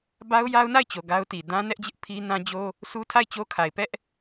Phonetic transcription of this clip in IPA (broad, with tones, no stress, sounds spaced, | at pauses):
b a˦ ʊ̯ j a˦ ʊ̯ n a˦˨ ɪ̯ t͡ɕ o˨ ɡ a˦ ʊ̯ t i˨ d ã˦ n ɛ˦ ʔ d͡ʑ ɪ˦ ʔ pʰ i˦ n ã˦ d͡ʑ o˦ | sʰ u˦ tʰ a˦˨ ɪ̯ t͡ɕ o˦ kʰ a˨ ɪ̯ p ɛ˦ ʔ